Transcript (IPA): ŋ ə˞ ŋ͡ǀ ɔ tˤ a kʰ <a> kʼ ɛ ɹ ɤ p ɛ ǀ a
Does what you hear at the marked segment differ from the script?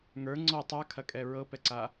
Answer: yes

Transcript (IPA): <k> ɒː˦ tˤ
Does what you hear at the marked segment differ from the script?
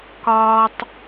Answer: no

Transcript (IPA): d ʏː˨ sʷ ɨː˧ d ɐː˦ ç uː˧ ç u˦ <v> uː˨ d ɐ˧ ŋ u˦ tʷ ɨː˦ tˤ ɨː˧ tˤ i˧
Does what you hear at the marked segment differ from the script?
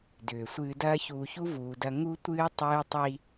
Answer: no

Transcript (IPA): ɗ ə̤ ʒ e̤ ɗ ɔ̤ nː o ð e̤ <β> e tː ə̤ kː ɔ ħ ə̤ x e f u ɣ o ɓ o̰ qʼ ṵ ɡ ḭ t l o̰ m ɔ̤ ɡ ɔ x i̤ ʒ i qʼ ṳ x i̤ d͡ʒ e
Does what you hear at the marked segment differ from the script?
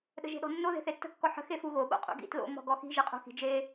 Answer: yes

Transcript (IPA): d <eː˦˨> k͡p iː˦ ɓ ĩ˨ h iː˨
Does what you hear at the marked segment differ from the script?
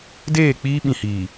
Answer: no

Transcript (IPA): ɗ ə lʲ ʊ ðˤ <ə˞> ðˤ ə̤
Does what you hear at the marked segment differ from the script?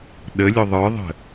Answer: no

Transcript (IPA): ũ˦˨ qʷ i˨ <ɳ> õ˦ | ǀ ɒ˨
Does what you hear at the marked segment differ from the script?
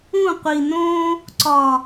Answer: yes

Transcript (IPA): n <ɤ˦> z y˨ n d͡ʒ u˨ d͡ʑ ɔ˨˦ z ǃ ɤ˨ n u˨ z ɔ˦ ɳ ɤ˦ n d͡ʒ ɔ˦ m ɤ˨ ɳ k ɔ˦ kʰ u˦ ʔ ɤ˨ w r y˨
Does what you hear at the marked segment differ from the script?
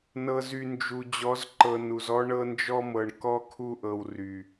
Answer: yes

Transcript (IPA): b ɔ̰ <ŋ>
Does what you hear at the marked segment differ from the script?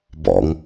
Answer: no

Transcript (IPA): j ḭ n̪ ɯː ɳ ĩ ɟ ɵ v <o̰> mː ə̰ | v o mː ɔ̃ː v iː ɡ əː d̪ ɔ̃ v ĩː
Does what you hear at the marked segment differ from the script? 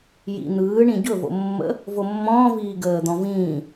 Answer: no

